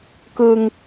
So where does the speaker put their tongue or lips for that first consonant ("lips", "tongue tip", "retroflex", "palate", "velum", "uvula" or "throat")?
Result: velum